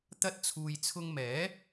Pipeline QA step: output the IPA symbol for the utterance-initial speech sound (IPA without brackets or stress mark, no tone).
t̪